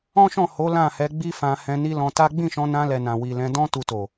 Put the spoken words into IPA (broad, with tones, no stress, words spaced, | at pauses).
ɔ̃˦ʃɔ̃˦˨ ho˨˦ lã˦˨hɛ˨˦ ɡ͡bi˦fã˧ hɛ̃˧ni˦ lɔ̃˧ta˦ ɡ͡bĩ˦˨ʃɔ̃˧nã˧ lɛ˨nã˨ wi˨lɛ̃˧dɔ̃˦ tu˧to˨